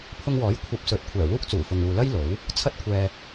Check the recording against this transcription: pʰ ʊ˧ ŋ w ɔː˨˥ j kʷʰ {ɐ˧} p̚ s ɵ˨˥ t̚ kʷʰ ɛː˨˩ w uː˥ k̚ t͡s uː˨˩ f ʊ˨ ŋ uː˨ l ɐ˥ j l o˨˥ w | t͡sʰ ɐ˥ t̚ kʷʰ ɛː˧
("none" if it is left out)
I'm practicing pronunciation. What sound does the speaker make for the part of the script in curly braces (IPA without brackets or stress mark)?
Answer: ɐ˧